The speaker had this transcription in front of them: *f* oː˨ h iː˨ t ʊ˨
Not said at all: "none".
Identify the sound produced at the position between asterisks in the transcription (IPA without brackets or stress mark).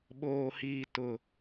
ɓ